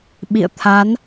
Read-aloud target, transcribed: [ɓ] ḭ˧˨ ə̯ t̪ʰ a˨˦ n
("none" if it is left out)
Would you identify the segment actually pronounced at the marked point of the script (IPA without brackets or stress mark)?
ɓ